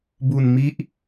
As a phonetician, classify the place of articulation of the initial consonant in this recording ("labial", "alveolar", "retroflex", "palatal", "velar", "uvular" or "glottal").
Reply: labial